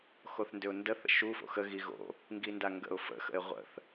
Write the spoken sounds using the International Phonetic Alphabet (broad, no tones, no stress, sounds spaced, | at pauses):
x o θ n d ʏ ʊ̯ n d ə θ ə̰ ʃ u f o̰ x ə ɣ i ɣ o̰ | ŋ ɡ i n d a ŋ ɡ ə̰ ʊ̯ f ə̰ x ə̰ ɪ̯ ʁʷ ə̰ θ